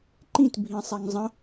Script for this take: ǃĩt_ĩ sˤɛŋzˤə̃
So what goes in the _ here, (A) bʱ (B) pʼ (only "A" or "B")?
A